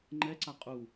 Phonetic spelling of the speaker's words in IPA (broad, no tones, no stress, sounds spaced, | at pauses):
ŋ͡ǃ ɛ ǀ a qʼ u